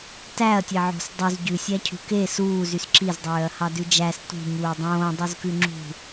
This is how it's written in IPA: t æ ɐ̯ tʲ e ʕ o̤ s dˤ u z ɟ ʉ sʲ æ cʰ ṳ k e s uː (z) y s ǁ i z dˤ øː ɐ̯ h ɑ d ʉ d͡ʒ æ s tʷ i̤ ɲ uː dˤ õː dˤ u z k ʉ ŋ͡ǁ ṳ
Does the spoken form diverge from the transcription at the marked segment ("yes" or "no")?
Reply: no